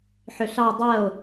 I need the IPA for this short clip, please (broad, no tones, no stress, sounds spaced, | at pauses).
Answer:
ħ ʏ ɬ ɑ o̯ dˤ ɜ o̯